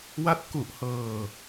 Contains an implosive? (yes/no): no